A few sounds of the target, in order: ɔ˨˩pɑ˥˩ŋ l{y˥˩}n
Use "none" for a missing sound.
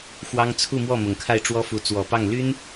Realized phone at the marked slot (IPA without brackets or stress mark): y˥